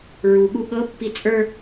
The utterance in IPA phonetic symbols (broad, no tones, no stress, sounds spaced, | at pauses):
ɹ u ɠ u ɠ ɤ pː i t͡sʼ ə˞